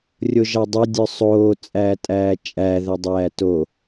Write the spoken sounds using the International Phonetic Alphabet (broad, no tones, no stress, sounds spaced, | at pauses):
rʲ o ʒ ɑ dˤ ø dʲ œ sˤ oː t͡sʼ æː tʼ æː t͡ʃʼ æ ð ɵ dˤ æː t o